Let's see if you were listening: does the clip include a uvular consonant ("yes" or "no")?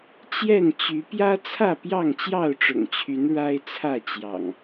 no